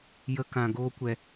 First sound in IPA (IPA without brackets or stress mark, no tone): j